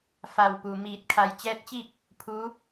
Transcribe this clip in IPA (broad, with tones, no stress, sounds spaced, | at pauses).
f a˧˩ w p u˩ m iː˧˩ t̚ kʰ a˧ j t͡ɕ ɛː˧˥ t̚ t͡ɕ i˥˨ k̚ | pʰ u˧˥